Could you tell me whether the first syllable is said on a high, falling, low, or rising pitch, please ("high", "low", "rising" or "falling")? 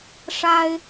high